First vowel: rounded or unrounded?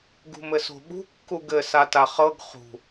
rounded